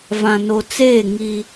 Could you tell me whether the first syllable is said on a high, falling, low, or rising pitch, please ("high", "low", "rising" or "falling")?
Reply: low